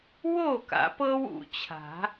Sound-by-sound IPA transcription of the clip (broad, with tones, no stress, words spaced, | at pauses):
wo˥˨ka̰˨˩˦ pɤ˦w ṵ˨˩t͡ɕʰa̤˨˩˦